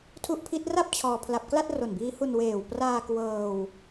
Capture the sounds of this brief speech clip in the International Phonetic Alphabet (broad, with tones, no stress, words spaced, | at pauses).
tʰu˦˥ʔpʰi˦˥t̚ra˥˩p̚ t͡ɕʰɔː˧pʰla˦˥p̚ kla˥˩t̚ro˨˩nbiː˦˥hu˧n weː˨˩wpraː˧ kwɤː˧w